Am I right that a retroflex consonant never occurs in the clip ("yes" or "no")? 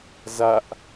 yes